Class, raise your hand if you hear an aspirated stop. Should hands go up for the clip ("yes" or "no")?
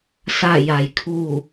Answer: yes